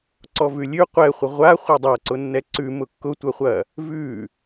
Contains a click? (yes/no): yes